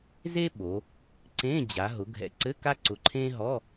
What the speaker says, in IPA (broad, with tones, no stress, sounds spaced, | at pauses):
z e˥ ɓ o˩˧ | ǀ ẽ˧˥˧ d͡ʑ a˩˧ ɦ ʊ˩˧ ɡʱ ɛ̰˨˩ ǀ ɘ˧˥˧ k a˥ ǀ ʊ˨˩ ǃʰ ẽ˥ ɦ ɔ˧˥˧